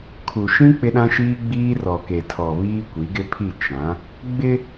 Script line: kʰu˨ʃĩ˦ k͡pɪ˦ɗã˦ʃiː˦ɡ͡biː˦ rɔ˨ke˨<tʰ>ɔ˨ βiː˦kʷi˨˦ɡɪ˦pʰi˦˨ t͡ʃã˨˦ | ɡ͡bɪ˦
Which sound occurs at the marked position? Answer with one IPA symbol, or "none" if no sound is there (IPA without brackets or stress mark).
tʰ